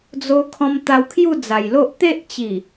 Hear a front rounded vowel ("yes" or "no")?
no